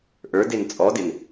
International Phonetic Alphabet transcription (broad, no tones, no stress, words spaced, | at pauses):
ʔə˞den t͡sʼɔdɪn